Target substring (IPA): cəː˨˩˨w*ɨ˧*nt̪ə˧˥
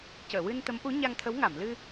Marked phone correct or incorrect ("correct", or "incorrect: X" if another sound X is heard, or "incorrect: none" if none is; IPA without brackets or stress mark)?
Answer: correct